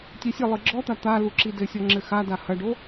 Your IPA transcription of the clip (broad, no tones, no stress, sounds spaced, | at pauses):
tʲ ɛ sʲ ɘ lˠ ɨ ɡ͡ǁ ɔ t̪ a t̪ a l u ǁ i d ɘ sʲ ɔ ŋ͡ǁ ɘ x a d a h ɐ ɖ o